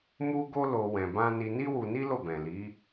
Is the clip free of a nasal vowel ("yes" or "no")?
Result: no